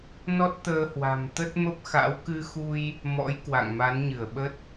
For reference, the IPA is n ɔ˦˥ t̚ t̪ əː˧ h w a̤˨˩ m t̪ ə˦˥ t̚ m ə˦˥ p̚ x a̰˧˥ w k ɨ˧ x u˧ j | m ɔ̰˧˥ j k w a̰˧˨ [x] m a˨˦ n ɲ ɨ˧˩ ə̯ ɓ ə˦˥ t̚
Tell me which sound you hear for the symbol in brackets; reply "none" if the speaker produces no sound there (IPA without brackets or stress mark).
ŋ